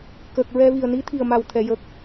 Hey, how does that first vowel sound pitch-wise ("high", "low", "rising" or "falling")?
low